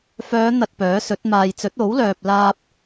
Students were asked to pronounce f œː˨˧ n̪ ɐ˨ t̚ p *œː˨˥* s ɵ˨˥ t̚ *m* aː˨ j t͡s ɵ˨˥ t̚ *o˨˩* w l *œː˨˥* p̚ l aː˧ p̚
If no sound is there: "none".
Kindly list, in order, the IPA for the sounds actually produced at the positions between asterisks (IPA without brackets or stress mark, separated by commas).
œː˨˥, m, o˨˥, œː˨